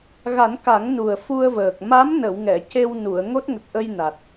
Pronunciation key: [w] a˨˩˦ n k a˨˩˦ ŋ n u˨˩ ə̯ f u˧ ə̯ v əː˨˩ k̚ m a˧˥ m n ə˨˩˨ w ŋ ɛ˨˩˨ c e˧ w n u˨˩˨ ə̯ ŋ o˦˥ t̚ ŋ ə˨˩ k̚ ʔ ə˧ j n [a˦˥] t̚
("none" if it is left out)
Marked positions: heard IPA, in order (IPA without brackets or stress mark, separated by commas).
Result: ɣ, a˨˩